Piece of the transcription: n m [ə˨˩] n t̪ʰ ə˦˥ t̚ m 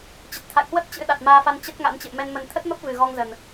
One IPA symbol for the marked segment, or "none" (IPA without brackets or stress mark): ə˨˩